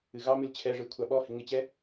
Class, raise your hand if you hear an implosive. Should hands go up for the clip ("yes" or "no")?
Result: yes